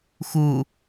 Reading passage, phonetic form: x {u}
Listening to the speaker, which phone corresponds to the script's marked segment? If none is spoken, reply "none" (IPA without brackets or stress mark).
u